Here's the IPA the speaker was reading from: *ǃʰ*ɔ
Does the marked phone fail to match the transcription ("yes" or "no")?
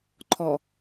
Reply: no